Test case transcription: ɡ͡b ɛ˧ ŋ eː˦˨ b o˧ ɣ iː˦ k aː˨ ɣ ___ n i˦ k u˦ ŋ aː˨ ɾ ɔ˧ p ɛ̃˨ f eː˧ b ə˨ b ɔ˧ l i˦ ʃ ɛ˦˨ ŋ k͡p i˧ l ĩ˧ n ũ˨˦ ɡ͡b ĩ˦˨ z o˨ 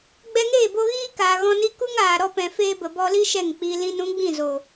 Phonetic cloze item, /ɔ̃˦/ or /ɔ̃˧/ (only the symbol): ɔ̃˧